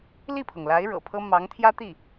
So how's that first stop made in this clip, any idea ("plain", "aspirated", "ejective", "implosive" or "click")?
aspirated